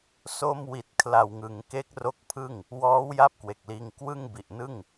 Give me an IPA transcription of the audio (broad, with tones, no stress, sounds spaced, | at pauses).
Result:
s o˧ m w i˨˩ t̚ kʰ l a˨˩ w ŋ ɯ˩˦ ŋ k e˦˥ k̚ r o˦˥ k̚ pʰ ɯ˥˩ ŋ | w ɔː˦˥ w j a˦˥ p̚ k w e˨˩ k̚ l iː˧ ŋ k w ɯ˥˩ ŋ b i˨˩ ʔ n ɯ˥˩ ŋ